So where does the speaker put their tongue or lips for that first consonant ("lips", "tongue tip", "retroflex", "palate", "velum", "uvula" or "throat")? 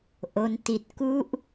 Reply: throat